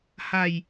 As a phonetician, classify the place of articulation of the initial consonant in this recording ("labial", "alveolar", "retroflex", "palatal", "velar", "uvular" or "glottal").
glottal